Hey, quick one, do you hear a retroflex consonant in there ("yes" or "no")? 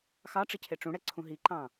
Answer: yes